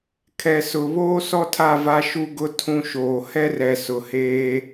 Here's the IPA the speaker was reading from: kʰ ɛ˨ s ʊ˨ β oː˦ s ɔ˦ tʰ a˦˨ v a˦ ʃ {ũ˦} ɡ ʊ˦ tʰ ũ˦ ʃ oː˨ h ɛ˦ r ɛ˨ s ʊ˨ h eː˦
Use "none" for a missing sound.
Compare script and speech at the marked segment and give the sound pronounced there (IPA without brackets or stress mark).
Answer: u˦